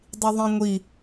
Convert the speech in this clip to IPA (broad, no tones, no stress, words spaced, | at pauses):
dˤiðˤĩŋʷi